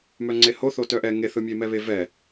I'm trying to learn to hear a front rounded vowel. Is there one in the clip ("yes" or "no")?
yes